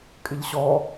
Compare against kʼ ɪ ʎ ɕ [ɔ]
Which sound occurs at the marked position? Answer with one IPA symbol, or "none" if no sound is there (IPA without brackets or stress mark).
ɔ